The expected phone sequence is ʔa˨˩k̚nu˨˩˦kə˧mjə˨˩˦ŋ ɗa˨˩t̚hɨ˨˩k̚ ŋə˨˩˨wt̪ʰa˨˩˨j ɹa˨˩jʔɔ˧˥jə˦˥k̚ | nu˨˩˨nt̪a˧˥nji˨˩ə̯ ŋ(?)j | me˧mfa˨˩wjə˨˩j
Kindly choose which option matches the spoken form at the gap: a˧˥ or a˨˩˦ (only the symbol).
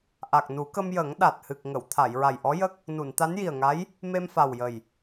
a˧˥